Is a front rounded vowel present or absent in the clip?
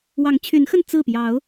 present